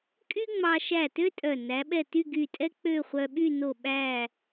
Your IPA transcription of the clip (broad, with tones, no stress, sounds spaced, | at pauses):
kʼ y˥ ŋ͡m ɑ˧ ʃ æ˧˩ t ø˥ tʼ œ˧˩ n æ˩˧ ɓ ɛ˧˩ t y˥˧ ɡ y˧˩ tʼ ɛ˥ k͡p ø˥˧ χʷ œ˧ ɓ y˥˧ n o˧˩ ɓ æ˧˩